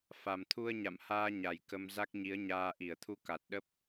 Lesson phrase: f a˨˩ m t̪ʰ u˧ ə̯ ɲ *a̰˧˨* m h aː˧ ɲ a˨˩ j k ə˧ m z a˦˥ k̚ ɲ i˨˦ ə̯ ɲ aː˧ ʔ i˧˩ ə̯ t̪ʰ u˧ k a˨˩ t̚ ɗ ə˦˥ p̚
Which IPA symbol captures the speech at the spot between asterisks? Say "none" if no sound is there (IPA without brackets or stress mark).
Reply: a̰˧˨